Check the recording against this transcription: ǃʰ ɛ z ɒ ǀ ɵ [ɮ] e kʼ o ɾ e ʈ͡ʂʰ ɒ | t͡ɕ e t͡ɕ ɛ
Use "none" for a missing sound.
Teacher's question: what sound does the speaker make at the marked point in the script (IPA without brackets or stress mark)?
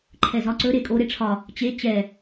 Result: ɾ